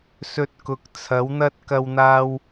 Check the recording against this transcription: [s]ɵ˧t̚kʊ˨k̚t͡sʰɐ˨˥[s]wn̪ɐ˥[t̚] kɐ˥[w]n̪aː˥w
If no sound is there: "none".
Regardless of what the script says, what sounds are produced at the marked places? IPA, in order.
s, none, t̚, w

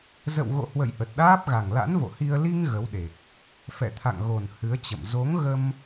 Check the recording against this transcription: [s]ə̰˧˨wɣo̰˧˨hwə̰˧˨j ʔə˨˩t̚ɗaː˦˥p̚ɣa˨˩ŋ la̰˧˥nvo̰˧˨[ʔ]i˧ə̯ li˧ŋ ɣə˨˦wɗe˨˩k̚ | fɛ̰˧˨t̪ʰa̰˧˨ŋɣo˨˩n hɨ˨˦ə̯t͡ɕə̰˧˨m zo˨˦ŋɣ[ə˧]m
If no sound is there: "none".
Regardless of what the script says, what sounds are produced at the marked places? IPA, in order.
z, h, ə˧

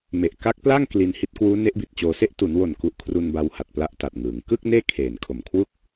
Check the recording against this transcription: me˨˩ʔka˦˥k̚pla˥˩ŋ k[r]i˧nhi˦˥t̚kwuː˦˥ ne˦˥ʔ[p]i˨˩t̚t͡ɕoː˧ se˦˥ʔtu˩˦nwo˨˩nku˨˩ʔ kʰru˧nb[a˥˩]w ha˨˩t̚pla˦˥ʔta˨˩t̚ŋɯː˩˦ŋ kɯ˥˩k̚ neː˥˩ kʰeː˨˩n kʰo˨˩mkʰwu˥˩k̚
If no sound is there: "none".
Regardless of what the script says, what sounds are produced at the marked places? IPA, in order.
l, b, a˧

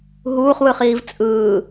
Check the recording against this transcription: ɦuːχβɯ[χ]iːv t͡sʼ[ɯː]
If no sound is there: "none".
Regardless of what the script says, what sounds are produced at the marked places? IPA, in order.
χ, ɯː

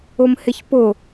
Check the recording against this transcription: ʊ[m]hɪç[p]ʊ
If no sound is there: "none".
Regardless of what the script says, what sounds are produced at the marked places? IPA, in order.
m, p

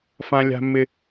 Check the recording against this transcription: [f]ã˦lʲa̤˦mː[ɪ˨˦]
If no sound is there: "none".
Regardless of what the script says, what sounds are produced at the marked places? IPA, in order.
f, ɪ˦

